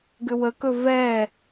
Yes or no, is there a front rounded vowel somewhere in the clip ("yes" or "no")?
yes